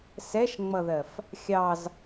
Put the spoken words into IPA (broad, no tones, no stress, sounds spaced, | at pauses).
s ɛ ʃ ŋ͡m ʌ ð ɜ f | xʲ ɑ z